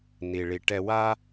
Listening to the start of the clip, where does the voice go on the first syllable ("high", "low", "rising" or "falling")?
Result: low